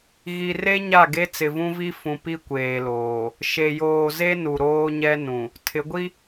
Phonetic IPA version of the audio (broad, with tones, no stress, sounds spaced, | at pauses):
ɣ i˨ r e˦ ɲ a˦˨ ɡ e˦ t͡s ɪ˨ v ũ˦ v i˦ f ũ˨ p i˦ kʷ eː˨ l oː˨ | ʃ e˨ j oː˨ z e˦ n u˨ ɾ oː˦ ɲ ɛ˦ n ũ˨ | tʰ ɪ˨˦ ɡʷ i˦